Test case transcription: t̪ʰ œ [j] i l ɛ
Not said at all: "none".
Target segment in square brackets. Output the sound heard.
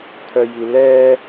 j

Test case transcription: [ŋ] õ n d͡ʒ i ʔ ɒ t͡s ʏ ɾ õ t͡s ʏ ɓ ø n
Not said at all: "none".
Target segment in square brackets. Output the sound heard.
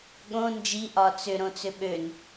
ɠ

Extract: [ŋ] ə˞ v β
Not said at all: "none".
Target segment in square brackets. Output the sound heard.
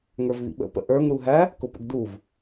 ŋ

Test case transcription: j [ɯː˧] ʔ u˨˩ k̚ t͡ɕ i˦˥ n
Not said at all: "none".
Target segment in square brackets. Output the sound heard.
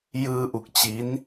ɯː˧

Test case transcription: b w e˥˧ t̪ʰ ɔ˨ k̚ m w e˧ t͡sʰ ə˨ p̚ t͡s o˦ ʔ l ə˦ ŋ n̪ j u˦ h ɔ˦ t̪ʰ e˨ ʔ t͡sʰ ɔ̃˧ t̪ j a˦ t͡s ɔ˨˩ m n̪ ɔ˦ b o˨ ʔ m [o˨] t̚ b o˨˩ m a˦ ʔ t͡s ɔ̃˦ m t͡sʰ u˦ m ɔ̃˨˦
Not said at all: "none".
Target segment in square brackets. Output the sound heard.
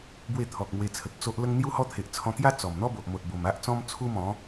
o˨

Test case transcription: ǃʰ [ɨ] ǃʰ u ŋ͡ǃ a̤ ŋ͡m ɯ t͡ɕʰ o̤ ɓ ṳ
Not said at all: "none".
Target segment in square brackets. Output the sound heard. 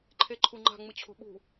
e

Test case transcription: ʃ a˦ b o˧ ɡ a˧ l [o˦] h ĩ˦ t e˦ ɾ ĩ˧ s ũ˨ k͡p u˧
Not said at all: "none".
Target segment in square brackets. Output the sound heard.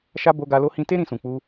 o˦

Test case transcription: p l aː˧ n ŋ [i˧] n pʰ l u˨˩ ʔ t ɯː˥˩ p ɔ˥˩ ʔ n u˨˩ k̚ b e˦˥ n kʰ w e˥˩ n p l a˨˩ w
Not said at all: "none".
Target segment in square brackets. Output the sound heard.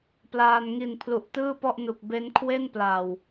i˨˩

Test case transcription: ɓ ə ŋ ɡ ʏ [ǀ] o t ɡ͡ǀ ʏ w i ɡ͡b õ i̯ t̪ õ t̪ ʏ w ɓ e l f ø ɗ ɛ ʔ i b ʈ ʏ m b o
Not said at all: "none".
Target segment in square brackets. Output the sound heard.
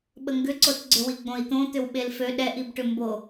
ǀ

